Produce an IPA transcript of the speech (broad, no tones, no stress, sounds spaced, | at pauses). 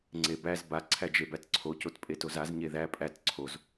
ŋ͡ǀ e b æ z b a ǀʰ æ d͡ʒ e b æ t ǀʰ o c o t pʼ e t o z a z ɲ e ð æ pʼ æ t ǀʰ o z